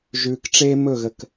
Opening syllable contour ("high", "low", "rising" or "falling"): low